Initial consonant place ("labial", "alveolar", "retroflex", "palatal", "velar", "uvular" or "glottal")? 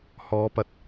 glottal